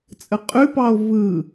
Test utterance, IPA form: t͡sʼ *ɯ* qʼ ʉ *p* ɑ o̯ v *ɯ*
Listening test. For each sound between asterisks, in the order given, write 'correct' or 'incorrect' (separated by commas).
incorrect, correct, correct